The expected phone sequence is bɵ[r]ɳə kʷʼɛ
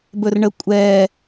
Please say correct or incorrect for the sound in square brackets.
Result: correct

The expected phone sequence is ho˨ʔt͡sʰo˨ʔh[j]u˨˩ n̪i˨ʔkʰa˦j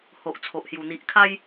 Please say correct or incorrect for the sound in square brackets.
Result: correct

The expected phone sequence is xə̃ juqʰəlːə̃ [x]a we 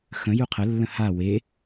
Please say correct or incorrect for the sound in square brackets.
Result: incorrect: h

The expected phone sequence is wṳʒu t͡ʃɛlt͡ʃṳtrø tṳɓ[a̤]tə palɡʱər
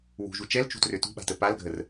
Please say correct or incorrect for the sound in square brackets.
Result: correct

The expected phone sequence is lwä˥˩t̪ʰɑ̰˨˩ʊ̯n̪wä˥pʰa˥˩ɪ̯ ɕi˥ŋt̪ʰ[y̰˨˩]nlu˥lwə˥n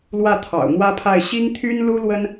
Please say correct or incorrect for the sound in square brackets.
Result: incorrect: y˥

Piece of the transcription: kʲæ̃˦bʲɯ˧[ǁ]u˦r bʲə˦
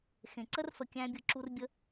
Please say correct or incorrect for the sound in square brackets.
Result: correct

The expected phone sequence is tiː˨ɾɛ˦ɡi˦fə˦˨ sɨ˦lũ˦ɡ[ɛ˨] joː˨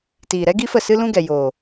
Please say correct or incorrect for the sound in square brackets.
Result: correct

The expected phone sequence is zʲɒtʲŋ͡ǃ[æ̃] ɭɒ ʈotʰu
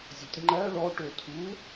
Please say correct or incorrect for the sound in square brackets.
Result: incorrect: æ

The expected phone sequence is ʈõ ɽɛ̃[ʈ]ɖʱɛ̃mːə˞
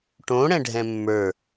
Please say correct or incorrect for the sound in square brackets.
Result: incorrect: none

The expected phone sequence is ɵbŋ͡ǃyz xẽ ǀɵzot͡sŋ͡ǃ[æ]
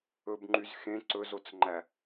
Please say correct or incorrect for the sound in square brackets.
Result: correct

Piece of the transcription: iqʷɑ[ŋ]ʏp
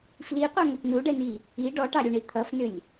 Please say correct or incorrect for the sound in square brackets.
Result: correct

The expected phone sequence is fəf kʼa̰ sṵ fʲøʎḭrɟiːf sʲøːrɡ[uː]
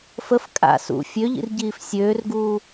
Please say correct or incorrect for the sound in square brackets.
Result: correct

